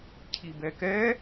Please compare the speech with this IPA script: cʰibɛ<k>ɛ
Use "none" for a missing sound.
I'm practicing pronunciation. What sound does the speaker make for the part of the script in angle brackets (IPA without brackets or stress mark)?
k